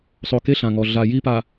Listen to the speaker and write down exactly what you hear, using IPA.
sˤ o˨ k e˦ ɬ ã˨ ŋ ɔ˨ ɮ a˨ j i˦ p a˨

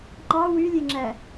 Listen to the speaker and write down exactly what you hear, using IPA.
ŋ͡ǃ ɑ w y lʲ e ŋ͡ǁ æ

